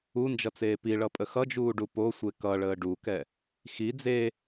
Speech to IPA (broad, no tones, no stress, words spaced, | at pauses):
und͡ʒʌt͡seː piɭʌpʼə xʌd͡ʒuːɖu posʷe kʌɭəː ɖukɛ | xi d͡ze